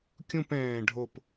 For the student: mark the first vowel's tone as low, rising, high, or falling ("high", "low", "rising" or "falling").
falling